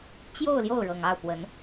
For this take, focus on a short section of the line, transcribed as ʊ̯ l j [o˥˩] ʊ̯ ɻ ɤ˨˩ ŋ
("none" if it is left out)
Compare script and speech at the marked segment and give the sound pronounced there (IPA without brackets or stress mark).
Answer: o˥˩